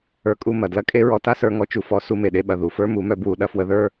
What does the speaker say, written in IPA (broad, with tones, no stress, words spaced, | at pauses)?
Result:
ə˞˧kʼu˧mɐ˨ dlɐ˦kʼe˦ ɹɔ˧ta˦sə˞˧ ŋɔ˧t͡ʃu˨fɔ˨˦ su˧me˨ɗe˧ɓɐ˨ ðu˨fə˞˦mu˨˦mœ˧ bwu˨ɗɐ˧fwə˧ðə˞˦